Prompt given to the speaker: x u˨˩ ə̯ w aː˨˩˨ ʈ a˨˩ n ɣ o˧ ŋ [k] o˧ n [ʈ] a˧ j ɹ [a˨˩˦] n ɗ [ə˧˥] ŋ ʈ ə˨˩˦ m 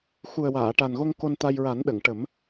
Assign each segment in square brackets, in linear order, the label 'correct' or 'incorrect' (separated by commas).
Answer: correct, incorrect, correct, incorrect